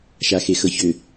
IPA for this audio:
ʃ a x e x ɤ ç ʏ

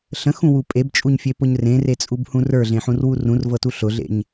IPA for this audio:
ɬ ə̃ x ũ w u pʼ e b t͡ʃʼ u ɲ fʲ e p ʊ ɲ r ẽ r e t͡sʼ u b h ũ r ə˞ ɮ ẽ ħ ũ r w u r ũ r v ɤ t u ɬ ʊ ɮ ḛ ɲ

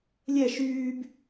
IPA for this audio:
lʲ ɛ ʃ yː b

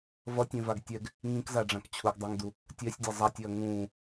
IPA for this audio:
v ʌ tʲ ẽ v a ɡ tʲ ɛ ɡ | ŋ ĩ k z a ɖ͡ʐ ã k t͡ɕʰ u ɡ dˤ a ŋ d u | tʲ ɛ sʲ dʲ a zˤ a tʲ e ɐ̯ ŋ ũː

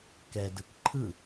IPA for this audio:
k ɛ d ɯ k ǃʰ ɯ

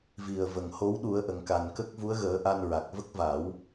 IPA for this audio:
v i˨˩ ə̯ v ə˨˩ ŋ h o˧˥ w ɗ u˨˩˦ ə̯ ʔ ə˨˩˨ ŋ k a˨˩ n k ə˦˥ k̚ v u˧˥ ə̯ ɣ əː˨˩˦ ʔ a˧ n ɹ a˨˩ k̚ v ə˦˥ k̚ v a˨˩˦ w

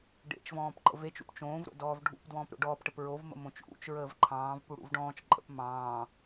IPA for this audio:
ɖ ḛ t͡ʃ v ɔ̃ː p ǃ ə̰ v e t͡ʃ ṵ p t͡ʃ õː v ɾ o̰ d ɔː v ɖʱ ṵ p d w ɔ̃ː p ɾ o̰ ɖ ɔː p ʈ ə p ɹ o v m ə̰ m õ t͡ʃ ʔ ṵ t͡ʃ ɹ əː v ǃʰ ɑ̃ː v p u ɽ ṵ v ɖ ɔ̃ː t͡ʃ ǃʼ ə̰ p m ɑ̃ː

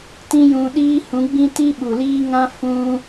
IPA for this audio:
t ĩ˦ j ũ˧ ɗ iː˦ h ũ˨˦ ɡ͡b ĩ˦ t i˦ ɓ u˨ l iː˦ ŋ ã˦ f ũ˧

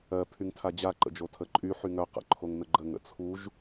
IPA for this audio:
ɜ pʰ y ŋ tʰ a d͡ʑ a ǃ ə̰ d͡ʒ o tʰ ə ǃʼ y ħ y ŋ œ q ə̰ ǃʰ o ŋ n ə ɡ͡ǃ ə ŋ ə̰ t͡sʰ u ʒ

